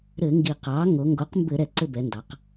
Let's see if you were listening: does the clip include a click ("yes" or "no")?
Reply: yes